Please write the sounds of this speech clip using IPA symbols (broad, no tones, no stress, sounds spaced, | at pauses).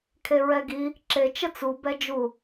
kʰ e ɹ ɛ ɡ i | ǁ e t͡ʃ ə t͡s u b ɛ d͡ʒ u